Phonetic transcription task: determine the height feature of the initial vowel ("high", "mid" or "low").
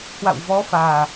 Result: low